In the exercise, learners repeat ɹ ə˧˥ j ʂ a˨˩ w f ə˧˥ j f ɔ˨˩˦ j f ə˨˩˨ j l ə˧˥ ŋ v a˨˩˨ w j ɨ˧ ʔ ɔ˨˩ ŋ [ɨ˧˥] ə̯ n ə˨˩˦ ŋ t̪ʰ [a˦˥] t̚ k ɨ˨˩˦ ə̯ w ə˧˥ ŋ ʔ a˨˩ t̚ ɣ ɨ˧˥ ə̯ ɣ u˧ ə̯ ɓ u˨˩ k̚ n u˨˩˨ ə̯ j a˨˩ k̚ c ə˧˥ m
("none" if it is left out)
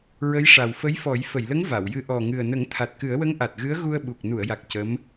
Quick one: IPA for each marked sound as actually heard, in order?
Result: ɨ˨˩, a˨˩

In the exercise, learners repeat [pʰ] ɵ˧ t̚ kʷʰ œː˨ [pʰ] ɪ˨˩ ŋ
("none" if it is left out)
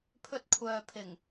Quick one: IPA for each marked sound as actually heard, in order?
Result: pʰ, pʰ

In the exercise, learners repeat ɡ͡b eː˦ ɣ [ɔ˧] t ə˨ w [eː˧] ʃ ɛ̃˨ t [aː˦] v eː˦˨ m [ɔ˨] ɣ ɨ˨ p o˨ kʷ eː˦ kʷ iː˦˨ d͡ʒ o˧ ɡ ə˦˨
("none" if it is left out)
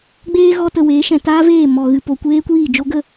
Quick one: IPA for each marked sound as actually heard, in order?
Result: ɔ˧, eː˨˦, aː˦, ɔ˨

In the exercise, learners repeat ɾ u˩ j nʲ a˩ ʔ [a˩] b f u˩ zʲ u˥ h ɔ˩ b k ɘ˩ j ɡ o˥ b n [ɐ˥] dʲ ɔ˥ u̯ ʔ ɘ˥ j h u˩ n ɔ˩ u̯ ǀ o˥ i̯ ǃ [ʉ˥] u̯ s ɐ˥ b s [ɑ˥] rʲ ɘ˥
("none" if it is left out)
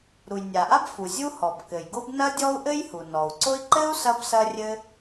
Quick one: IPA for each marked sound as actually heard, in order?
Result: a˥, ɐ˥, ɘ˥, ɐ˥

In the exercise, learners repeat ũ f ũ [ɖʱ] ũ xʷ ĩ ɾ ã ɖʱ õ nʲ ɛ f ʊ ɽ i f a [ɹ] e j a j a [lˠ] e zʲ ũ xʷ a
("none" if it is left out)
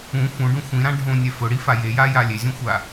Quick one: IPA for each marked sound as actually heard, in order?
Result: ɖ, j, lʲ

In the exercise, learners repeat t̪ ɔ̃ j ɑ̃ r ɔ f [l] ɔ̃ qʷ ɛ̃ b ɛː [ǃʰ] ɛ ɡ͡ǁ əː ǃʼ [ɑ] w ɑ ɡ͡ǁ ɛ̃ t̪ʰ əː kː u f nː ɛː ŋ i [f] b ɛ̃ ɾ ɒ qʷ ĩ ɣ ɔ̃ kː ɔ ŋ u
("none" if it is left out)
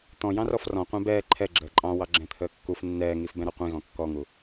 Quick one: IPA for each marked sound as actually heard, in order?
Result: r, ǃʰ, ɑ̃, f

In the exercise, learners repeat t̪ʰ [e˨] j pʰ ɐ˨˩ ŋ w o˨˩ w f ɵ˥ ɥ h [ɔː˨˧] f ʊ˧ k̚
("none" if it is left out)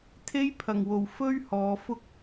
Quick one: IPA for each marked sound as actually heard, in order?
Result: e˥, ɔː˨˧

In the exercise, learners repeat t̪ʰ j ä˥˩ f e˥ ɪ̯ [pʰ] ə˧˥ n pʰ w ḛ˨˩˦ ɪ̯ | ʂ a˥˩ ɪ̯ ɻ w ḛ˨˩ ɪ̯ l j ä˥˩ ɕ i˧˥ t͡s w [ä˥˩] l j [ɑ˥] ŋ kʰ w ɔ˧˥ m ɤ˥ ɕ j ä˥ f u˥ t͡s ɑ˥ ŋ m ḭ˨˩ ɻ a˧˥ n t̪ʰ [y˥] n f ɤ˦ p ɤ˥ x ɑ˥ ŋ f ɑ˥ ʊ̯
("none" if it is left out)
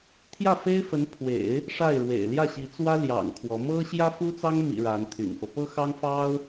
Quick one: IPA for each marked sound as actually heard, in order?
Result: f, ä˥, ɑ̰˨˩, y̰˨˩

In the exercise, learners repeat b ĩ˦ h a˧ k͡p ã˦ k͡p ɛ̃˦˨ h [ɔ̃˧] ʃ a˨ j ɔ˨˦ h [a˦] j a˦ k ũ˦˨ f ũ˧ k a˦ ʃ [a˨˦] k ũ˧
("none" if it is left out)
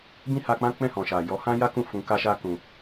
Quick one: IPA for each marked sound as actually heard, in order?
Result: ɔ̃˨, ã˦, a˦

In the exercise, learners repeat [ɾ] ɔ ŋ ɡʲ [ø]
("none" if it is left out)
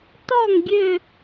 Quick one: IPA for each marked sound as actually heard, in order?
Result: t, ø

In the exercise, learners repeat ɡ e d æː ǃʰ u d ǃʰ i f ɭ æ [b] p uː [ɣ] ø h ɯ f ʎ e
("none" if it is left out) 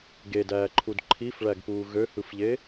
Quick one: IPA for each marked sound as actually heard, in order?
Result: ɡ, ɣ

